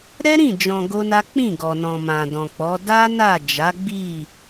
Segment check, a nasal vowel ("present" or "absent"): present